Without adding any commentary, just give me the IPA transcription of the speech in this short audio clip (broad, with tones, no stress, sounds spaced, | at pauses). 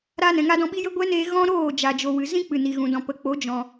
ɾ aː˧ n ɛ̃˨ ŋ a˧ d ɔ̃˧ ɓ i˦ j ə˦ ɡʷ ɛ˦ n eː˧ ɣ ɔ̃˦ ɾ oː˦˨ d͡ʒ a˨ d͡ʒ o˨ w ɨ˨ z ĩ˦ k͡p ɨ˨ n i˨ ɣ ũ˨ d ɔ̃˨ p ə˨˦ k͡p o˨˦ d͡ʒ ɔ̃˨